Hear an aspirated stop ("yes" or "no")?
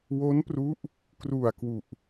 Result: no